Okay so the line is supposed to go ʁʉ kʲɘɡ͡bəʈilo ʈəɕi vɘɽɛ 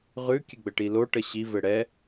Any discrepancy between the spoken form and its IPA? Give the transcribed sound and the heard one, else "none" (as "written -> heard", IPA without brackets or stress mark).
none